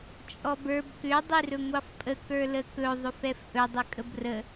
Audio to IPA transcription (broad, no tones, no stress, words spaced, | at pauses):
t͡ʃʼɔbə˞b kʏ dˤirɵŋʷɑfpʼə kə˞ləkɵ ðˤʏfɛfʔɵ dˤʏkʼəbrə